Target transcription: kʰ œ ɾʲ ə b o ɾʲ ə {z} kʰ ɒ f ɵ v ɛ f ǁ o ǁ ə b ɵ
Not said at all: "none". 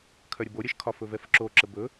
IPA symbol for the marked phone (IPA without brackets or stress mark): ʃ